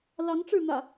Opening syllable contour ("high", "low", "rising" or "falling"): rising